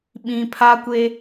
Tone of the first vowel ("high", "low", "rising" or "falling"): low